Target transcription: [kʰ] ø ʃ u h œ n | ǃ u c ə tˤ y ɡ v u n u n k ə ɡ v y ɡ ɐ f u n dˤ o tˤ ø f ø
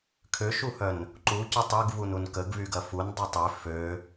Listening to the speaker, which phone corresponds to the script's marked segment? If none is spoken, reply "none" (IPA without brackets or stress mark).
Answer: kʰ